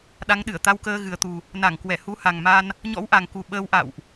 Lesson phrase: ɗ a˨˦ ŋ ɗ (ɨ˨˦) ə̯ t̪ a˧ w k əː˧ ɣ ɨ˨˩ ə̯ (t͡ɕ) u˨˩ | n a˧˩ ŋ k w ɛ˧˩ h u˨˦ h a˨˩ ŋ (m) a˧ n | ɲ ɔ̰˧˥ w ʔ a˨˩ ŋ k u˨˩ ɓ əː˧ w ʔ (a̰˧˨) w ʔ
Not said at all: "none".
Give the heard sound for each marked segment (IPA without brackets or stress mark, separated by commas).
ɨ˧˩, t̪, m, a̰˧˨